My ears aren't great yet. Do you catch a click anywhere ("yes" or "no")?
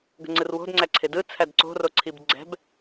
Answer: yes